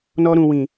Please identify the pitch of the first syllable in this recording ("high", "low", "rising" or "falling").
high